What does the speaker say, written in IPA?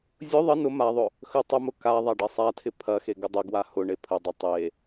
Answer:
zʲʊ ðˤə nʊ maðˤʊ | xə tˤəmʊ ka ðˤaɖɐsˤatʰɪ pʰɐxe ɡədˤɪɡwa hʊ ɳepʰədˤɐ tˤe

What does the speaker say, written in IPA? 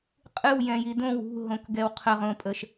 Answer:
qʼɨwjɛ̃ji dõw ṳɦõkɡɛw qʰəʁõpʼəʃ

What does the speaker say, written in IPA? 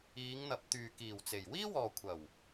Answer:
iː˨˧ŋn̪ɐ˨˥p̚ t̪yː˨kiː˨˩wt͡se˨˩j wiː˥wɔː˨kʷʰɐ˨˩w

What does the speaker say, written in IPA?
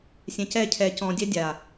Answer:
sʲɛ̃˨cɛː˦˨cʰɛː˨ cɔ̃ː˨dʲɛ˦ dʲaː˨

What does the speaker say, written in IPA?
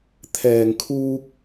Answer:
t̪ʰɛː˨ŋkʰuː˧k̚

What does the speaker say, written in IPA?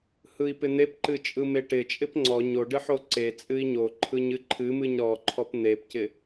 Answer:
hɯi̯pɪn̪epǃɨ t͡ʃʼɯmeʈɪt͡ʃʼɪp ŋ͡ǀɔ ɲoɖɨ ħoǀet͡sʼɨi̯ ɲo ǃʰɯɲɨǃʰɨmɨɲ ɾɔǃʰɔp n̪epcɪ

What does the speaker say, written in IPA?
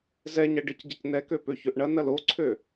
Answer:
zɛ ɲɐɖɪcɟɪc nɛkø pøçøʔɳɐ nɐloǀʰø

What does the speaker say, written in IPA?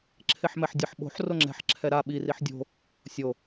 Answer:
ǁʰeħmɛħdʲʌħ ɓo̤ħ roŋ͡ǁɛ̤ħ ǁʰɛɾa ɓi riħdʲo̤ | sʲo

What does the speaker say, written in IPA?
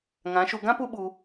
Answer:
ŋã˨˦ʃu˧ ɡã˦ pu˦ɓu˧

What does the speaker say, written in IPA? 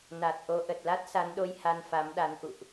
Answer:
na˨˩t̚ʔo˧ ʔə˨˩t̚la˦˥t̚sa˨˦nɗo˧j ha˧nfa˨˦mɗa˨˦n ʔṵ˧˨ʔ

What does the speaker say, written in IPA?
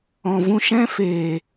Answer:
ɔ̃˨vũ˧ʃɛ̃˦feː˨

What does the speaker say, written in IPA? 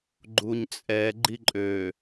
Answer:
ɡ͡ǃuɲt͡sʼɛ ɡ͡ǃiǃʼø

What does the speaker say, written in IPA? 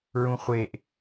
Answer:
ɹũχʷeʔ

